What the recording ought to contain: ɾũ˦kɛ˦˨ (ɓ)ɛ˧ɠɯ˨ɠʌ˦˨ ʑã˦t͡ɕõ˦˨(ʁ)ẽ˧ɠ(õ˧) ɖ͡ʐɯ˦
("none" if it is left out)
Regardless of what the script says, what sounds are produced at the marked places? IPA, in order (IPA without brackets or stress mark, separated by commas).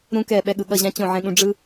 ɓ, ʕ, ũ˧